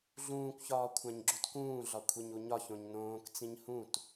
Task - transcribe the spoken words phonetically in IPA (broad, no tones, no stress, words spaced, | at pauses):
ɮũːkʷçɒː kʷʰæ̃ɲɡ͡ǁutkũːɮɒ kʷʰeɲuɲɒçõɲ nõːkt͡sĩɲ hũt